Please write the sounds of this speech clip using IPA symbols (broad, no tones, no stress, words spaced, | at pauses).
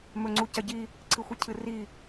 mɵŋ͡ǀucɐɟi | ǀʰɨxʷɨcʰɨri